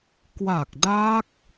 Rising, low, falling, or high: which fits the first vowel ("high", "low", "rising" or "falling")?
low